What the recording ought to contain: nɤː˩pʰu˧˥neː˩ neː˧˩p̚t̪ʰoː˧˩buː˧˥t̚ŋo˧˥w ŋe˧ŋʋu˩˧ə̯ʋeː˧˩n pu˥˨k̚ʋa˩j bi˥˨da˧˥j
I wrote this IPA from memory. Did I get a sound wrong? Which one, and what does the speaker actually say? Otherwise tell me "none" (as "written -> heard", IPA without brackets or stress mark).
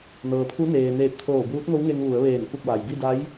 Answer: none